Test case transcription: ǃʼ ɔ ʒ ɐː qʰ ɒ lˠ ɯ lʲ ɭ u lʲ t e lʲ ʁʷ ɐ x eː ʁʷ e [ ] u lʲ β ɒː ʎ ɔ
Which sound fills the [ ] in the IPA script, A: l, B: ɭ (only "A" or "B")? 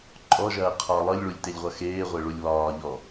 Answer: B